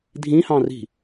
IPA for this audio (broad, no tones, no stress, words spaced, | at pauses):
dʱĩhɑ̃ri̤